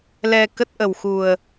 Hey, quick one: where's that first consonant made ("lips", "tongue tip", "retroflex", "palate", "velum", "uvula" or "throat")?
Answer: tongue tip